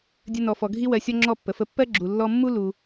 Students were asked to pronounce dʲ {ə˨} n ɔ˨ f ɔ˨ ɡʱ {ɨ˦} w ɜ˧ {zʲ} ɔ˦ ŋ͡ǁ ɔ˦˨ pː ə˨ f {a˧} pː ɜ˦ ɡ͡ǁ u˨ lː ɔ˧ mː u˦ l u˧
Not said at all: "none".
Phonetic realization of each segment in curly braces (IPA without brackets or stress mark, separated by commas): ə˧, i˦, sʲ, ə˧